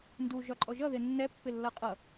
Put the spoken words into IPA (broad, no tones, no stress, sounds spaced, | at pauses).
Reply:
n d u ʒ ɒ ǃʼ ɔ ʒ ʌ ð ɪ nː ɛ pː ɪ lː ʌ qʼ ʌ